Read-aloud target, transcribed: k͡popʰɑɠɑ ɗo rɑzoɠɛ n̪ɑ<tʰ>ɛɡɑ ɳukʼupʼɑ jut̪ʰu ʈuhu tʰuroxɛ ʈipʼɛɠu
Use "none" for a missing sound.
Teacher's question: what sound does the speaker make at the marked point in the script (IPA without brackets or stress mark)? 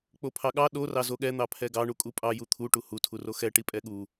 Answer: pʰ